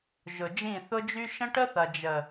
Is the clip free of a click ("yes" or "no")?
yes